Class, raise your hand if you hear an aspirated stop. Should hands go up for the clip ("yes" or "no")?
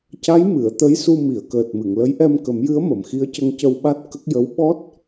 no